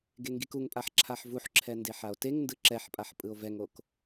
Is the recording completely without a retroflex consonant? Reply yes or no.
yes